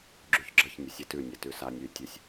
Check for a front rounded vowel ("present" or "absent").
present